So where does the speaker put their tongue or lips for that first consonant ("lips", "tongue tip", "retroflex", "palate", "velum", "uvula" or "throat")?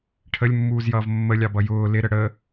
retroflex